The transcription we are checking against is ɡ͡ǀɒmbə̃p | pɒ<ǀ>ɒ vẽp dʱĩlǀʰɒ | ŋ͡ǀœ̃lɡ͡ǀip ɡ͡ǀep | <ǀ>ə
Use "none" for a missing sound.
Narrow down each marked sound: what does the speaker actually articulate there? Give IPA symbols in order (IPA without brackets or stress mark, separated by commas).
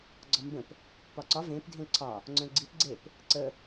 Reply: ǀ, ǀ